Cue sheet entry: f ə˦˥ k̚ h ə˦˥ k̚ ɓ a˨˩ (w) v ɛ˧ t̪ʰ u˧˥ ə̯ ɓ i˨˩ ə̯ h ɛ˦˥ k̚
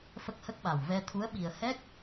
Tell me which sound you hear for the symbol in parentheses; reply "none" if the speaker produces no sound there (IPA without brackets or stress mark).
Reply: w